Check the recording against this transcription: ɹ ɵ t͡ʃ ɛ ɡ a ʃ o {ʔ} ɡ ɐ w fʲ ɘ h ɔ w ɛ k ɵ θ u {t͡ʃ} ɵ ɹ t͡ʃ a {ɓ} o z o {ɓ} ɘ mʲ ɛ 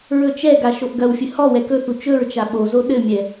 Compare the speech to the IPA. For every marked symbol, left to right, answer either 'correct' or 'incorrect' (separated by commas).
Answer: correct, correct, correct, incorrect